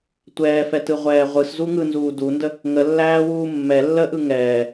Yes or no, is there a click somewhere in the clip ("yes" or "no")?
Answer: no